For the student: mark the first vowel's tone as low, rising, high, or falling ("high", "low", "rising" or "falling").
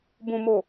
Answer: low